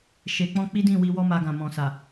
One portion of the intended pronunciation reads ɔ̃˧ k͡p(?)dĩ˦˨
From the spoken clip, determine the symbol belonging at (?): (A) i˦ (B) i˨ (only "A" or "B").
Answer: A